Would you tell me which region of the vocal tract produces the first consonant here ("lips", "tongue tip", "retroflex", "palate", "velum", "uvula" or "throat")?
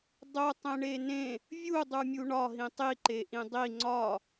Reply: tongue tip